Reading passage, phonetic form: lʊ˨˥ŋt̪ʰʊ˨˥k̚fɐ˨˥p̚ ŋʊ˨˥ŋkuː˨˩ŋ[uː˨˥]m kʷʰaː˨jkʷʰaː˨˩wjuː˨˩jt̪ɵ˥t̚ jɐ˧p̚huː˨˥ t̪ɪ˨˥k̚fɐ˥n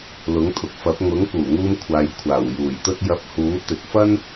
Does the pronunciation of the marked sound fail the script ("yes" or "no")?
yes